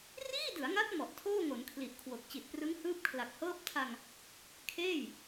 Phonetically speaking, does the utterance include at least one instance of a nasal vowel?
no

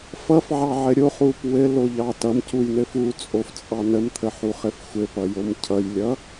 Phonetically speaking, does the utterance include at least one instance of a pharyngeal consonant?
yes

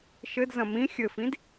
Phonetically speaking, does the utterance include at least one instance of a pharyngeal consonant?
no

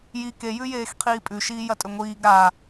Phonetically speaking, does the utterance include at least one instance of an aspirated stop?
yes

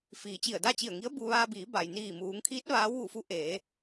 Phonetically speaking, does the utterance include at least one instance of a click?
no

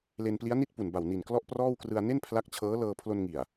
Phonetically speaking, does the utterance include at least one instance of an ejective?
no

